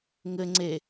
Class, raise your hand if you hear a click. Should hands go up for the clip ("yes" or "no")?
yes